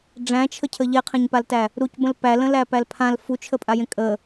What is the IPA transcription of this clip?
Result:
ɖ͡ʐ æ̃ t͡ʃʰ ə cʰ ə ʎ e qʰ ẽ ɲ p a l t æ | ɾ u c b ə̃ l p æ l ə̃ l æ p æ l pʰ ã l f u t͡ʃʰ ə pʼ a j ẽ kʼ ə

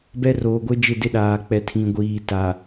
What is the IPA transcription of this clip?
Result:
b ɛ˦ r oː˨ ɡʷ e˦ d͡ʒ ɪ˦˨ d ɪ˦ ɗ aː˨ k͡p ɛ˨ tʰ ĩ˨ ɡʷ iː˨ t a˨

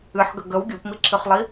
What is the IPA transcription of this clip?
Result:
ɨ ħ ɡ ə ɡ ə w ɡʲ o p m i ǁʰ ɨ χ lˠ i

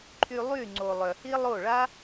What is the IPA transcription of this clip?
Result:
ǃʰ y˧ lˠ y˦˨ ŋ͡ǀ o˨ lˠ œ˨ h i˦ lˠ o˦˨ ɭ a˦

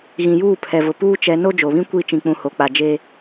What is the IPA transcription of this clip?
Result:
ɣ ĩ˨ j uː˦˨ pʰ ɛ˨ v ʊ˨ p uː˦ t͡ʃ ɛ˨˦ n o˦ d͡ʒ o˨ β ĩ˦ kʷ i˦˨ t͡ʃ ĩ˦ k͡p ũ˦ h o˨ k͡p a˨ d͡ʒ e˦

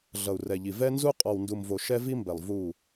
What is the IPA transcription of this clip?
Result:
ɮ ʌ˨ u̯ r ɛ˨ ʎ i˨ v ɛ˦ n z u˦ qʼ ɔ˨ w n d u˨ m v o˨ ʃ ɛ˦ v i˦ m b ɛ˨ lˠ v u˦˨

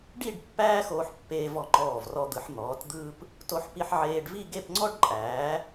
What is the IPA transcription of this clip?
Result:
ɖ i˥˧ ɖ pː æː˥ x oː˧ ħ pː eː˧ v ɔ˧˩ ŋ͡ǃ ɔː˧˩ v r ɔ˧ d̪ ɯ˩˧ ħ n̪ ɔː˩˧ t d̪ ɯː˧ p | t o˧ ħ p i˧ ħ ʕ eː˧ ɖ v i˥˧ ɡ e˥˧ p ŋ͡ǀ ɔ˥ ɖ ǃʼ æː˩˧

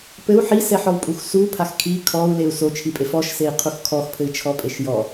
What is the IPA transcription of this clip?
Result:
p ɘ u̯ ħ i s ɛ ħ ɔ w pʼ u x s u pʰ a x kʰ i kʰ ɔ u̯ l e u̯ s o t͡ʃʰ i pʼ e f ɔ ʃ s e i̯ qʰ u x kʰ ɔ x pʰ ɘ i̯ t͡ʃʰ ɔ pʼ e ʃ j ɔ

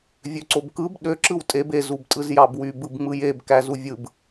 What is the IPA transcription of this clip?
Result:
vʲ ø ǀ o b k ɯ b ɗ ø ǁ ɯ w tʼ e b e z u b tʼ ɯ z j ɑ b w y b ɯ b ŋ͡m ɯ j e b k æ z u vʲ ɯ b

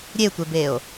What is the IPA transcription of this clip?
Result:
ɾʲ e tʷ e b e o̯

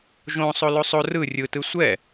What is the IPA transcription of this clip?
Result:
ʒ õ sˤ o l o sˤ o r ɯ rʲ ɯ t ɯ sʷ ɛ

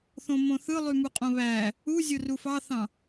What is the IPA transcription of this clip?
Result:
θ õ m õ θ ɯ lˠ y m u qʼ õ β æ | u zʲ o r u f ɑ θ ɑ̃

